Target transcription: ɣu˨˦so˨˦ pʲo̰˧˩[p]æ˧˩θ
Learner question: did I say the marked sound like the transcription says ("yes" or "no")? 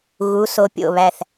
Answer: no